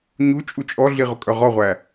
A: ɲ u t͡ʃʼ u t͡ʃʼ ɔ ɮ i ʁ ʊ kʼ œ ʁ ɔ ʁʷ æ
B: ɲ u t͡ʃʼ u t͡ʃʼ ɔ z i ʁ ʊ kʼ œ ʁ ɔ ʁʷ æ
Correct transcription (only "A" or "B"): A